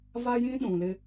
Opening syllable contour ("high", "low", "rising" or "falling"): high